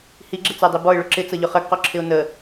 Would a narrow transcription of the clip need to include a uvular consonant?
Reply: yes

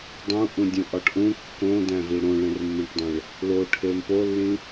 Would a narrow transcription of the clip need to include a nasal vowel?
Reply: yes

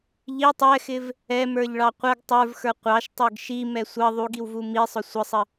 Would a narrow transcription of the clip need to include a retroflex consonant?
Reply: yes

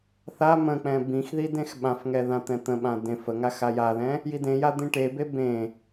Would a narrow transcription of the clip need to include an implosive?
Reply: yes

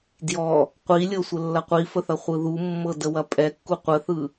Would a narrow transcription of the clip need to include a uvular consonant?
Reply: yes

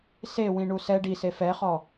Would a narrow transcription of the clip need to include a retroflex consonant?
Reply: yes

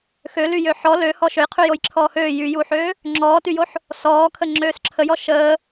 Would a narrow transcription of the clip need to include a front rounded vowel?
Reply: yes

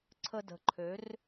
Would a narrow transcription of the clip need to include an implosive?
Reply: no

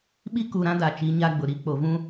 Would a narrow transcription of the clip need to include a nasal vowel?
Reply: yes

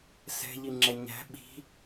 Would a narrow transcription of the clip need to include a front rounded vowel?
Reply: no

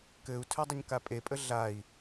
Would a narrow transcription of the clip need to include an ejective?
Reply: yes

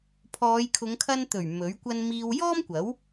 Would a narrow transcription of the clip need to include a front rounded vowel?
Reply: no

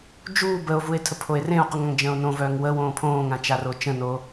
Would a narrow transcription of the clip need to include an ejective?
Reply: no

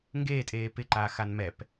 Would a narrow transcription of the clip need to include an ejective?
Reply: yes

